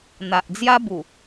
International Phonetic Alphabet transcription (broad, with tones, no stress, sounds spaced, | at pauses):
n̪ a˨ ʔ d͡z j a˦ b u˨˩